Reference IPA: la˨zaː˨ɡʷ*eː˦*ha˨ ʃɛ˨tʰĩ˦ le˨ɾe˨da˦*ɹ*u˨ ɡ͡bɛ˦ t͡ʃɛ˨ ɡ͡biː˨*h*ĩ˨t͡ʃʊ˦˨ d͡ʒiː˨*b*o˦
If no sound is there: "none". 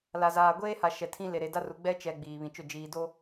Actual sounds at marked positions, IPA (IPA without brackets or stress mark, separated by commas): eː˦, r, β, d